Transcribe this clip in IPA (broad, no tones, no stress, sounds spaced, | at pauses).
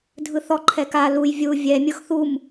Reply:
dʱ ɯ θ ɔ ǃʰ ɛ k a l u j vʲ u vʲ ɛ mʲ ɤ x θ u m